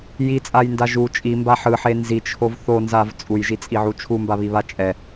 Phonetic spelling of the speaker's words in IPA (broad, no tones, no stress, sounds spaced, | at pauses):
j i t͡sʼ a j n d a ʒ u t͡ʃʼ i m b a ħ ɯ ħ e n z i t͡ʃʰ o v θ o n z a v t͡sʼ u j ʒ i t͡sʼ i ʕ u t͡ʃʰ u m b a β i β a t͡ʃʼ ɛ